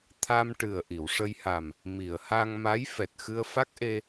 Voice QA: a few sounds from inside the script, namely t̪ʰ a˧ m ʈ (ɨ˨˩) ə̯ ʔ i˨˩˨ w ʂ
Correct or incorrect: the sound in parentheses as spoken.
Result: correct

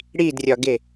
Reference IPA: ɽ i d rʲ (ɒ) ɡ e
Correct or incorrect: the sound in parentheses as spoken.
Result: correct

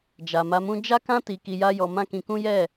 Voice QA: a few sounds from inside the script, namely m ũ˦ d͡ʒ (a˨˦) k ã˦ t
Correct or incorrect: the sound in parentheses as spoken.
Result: incorrect: a˦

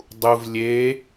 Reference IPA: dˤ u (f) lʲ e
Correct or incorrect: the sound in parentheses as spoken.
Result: incorrect: v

